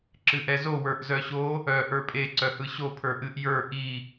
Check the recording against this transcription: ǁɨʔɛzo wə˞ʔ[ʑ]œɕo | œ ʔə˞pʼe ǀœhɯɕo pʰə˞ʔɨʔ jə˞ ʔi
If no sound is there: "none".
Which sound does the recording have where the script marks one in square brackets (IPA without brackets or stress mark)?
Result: z